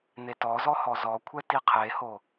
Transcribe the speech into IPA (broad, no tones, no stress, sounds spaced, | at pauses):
n̪ e t ɔ z ɔ h ɔ z ɔ kʷʰ ɛ t i qʰ e h o